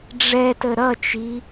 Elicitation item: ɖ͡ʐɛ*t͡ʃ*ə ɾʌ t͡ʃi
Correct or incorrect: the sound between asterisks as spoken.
incorrect: t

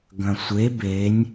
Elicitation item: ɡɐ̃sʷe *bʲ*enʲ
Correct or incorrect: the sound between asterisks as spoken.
incorrect: b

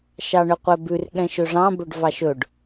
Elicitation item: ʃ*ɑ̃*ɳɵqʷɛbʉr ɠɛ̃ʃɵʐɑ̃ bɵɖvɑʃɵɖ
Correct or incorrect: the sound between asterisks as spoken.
incorrect: ɑ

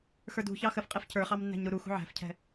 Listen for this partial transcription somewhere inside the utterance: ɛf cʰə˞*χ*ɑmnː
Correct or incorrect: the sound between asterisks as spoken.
correct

